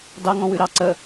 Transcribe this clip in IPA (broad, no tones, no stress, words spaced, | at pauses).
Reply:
dɑŋɔ̃ wʉɾɑ ǀə